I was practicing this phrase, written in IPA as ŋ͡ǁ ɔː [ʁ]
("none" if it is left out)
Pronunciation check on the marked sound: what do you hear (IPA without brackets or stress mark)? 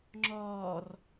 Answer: r